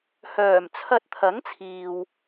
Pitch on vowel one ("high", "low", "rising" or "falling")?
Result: low